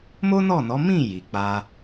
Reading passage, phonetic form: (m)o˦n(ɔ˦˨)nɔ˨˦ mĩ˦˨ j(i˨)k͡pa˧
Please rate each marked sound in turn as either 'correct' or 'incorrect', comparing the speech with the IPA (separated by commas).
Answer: correct, correct, correct